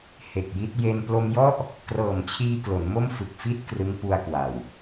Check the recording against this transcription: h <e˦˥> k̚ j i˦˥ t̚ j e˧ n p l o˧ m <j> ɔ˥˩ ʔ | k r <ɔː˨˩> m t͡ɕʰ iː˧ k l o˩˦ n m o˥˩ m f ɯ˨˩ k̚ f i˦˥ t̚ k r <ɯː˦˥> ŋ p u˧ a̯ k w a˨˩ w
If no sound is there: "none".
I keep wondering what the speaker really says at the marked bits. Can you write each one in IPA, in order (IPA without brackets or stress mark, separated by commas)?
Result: e˨˩, j, ɤː˨˩, ɯ˦˥